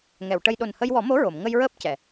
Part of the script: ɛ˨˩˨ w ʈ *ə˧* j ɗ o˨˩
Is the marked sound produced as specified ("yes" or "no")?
yes